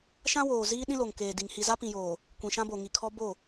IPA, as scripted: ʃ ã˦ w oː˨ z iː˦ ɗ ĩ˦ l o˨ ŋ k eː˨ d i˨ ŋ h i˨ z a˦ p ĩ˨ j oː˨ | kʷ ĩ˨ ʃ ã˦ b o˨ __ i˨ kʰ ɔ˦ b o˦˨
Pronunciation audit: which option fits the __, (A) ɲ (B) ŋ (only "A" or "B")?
B